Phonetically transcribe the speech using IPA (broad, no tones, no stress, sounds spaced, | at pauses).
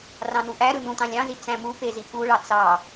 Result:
r ɑ̃ n u ʔ æ ɾ ɯ n ũ t ɑ̃ lʲ ɑ̃ z i t͡s æ̃ m u p e z i p u ɭ ɑ t͡s ɑ